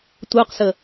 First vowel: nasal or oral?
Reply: oral